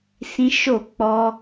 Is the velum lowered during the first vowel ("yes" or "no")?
yes